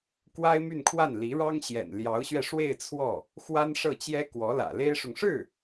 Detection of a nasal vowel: absent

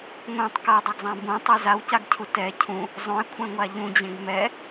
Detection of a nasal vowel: present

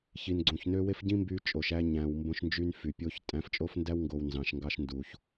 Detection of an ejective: present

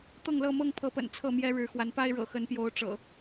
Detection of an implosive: absent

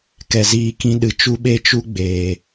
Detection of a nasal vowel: present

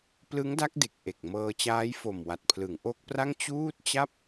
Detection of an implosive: absent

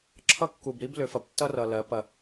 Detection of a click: present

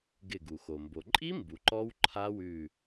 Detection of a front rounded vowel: absent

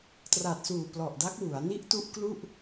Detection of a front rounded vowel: absent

